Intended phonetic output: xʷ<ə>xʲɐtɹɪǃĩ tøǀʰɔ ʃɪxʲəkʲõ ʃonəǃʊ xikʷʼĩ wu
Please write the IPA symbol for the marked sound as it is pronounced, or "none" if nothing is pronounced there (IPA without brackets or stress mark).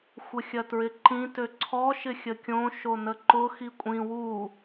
ə